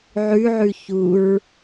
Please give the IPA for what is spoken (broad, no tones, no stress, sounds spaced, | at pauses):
ʕ ʉ ʕ ʉ ç u ɹ